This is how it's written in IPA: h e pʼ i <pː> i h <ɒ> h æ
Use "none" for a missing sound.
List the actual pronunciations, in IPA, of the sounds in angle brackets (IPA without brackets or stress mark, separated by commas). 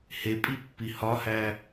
pː, ɒ